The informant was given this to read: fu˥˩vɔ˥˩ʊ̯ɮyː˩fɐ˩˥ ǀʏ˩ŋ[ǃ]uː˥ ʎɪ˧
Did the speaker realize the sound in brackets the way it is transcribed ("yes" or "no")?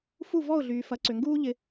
no